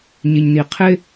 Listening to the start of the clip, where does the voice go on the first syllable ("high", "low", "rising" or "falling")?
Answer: low